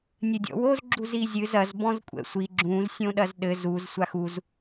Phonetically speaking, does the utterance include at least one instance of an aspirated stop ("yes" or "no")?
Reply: no